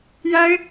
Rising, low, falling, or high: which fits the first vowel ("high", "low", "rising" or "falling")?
high